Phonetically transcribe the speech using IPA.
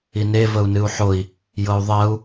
ine vəu̯nɨu̯ħoi̯ | jɤu̯ðˤɜu̯

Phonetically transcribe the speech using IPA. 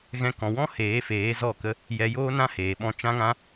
ɣɛ̃˧kɔ̃˨wɔ̃˦heː˨˦ feː˨˦zɔ˦˨kə˦ | jɛ˧joː˦nã˦heː˨ ɓɔ̃˧t͡ʃã˦ŋã˦

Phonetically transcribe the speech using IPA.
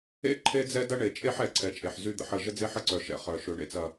ḛ˦ ǃʰe˦d͡zɛ˦dɐ˦ ɳe˨t͡ʃʼe˦ħɛ˨ ǀʰɛ˨t͡ʃʼe˨ħ zy˦d̪ə̰˨ħə˦˨ ʒə˦d͡ze˦ħə˦ ǀœ˨ʃɛ̰˨ χœ˨ ʃø˨ɳḛ˨t͡sɐ˨

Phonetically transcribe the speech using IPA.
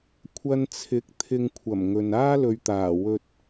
kʷʰɐ˧nt͡sʰɪ˨˥k̚ t̪ʰɪ˨ŋkʷʰɐ˨˩m ŋɵ˨n aː˥lɵ˨ɥt̪aː˨˩ wɵ˧t̚

